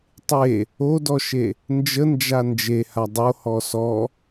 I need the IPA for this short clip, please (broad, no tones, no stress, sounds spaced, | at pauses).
tˤ e | o d ɔ ʃ e | n d͡ʒ ə n d͡ʒ a n d͡ʒ e h a dˤ o h ɔ s ɔ